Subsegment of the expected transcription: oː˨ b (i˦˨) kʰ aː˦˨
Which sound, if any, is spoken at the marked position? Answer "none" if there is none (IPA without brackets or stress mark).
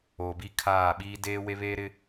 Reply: i˦˨